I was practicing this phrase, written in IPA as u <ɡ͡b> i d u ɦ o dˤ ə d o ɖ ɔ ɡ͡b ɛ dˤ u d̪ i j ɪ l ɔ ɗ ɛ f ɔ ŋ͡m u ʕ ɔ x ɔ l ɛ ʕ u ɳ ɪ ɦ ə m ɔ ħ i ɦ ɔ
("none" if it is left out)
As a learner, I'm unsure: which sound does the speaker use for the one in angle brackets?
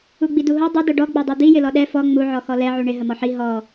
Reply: ɡ͡b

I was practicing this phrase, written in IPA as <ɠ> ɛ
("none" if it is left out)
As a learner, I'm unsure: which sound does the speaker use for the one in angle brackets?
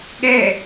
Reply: ɠ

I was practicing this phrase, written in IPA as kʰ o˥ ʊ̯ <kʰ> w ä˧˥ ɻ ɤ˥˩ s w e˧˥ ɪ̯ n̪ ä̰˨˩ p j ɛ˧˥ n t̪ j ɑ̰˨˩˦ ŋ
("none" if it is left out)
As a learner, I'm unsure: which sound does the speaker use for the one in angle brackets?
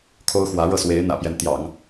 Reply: x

